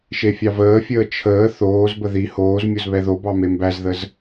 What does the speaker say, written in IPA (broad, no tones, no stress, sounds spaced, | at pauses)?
ʃ e fʲ ɑ v əː fʲ əː t͡ʃʰ əː θ oː z b ə ð i h oː z mʲ o z β ɛ ð o b ɑ m e m b æ z ð ə z